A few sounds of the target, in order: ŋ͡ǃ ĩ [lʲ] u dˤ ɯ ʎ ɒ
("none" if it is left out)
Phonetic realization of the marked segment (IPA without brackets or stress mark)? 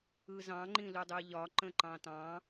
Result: l